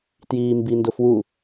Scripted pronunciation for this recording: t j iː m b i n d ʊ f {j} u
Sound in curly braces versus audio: incorrect: w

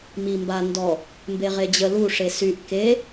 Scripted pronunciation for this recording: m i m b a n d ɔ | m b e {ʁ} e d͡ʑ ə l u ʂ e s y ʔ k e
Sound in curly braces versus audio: correct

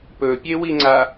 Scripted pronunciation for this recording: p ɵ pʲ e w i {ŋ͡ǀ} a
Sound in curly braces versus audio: correct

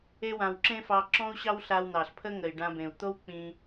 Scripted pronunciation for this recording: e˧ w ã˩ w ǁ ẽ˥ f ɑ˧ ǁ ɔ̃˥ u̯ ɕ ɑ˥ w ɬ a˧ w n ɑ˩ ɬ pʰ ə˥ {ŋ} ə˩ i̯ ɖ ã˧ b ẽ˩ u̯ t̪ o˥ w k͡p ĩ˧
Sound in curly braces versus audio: correct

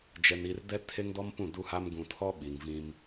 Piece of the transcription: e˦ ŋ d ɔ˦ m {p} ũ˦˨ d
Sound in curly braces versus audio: correct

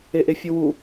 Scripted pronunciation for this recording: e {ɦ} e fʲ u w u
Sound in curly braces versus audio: incorrect: ʔ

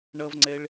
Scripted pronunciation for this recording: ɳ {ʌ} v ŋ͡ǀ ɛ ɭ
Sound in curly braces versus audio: correct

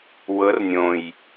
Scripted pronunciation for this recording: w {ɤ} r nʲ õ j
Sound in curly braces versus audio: correct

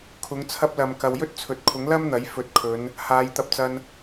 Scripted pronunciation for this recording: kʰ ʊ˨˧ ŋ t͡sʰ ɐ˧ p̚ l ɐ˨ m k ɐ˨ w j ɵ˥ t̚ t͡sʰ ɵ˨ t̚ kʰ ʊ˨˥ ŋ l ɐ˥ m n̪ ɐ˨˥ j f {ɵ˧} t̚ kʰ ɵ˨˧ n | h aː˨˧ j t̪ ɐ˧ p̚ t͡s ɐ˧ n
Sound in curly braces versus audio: incorrect: ɵ˨˥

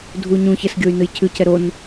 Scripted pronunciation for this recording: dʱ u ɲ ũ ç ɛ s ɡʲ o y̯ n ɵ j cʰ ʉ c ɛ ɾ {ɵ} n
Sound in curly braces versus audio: incorrect: o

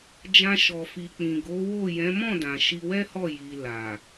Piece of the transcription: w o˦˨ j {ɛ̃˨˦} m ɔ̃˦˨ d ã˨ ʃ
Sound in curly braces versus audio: correct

